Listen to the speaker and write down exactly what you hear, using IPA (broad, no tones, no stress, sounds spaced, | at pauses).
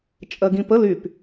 t͡ʃʼ ɜ ɡ ĩ p ə l y p